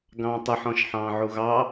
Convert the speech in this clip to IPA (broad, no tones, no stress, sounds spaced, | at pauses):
ɡ ɑ̃ː tˤ ʊ ħ ɔ̃ ʃ ħ ɑ̃ː ʕ u ɣ ɑ